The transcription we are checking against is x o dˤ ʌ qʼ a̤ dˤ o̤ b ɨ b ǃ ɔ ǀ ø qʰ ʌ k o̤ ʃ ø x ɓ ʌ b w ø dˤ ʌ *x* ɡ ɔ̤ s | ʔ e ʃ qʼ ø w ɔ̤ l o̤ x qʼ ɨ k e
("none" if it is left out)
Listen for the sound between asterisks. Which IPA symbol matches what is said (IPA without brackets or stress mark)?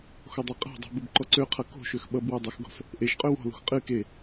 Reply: x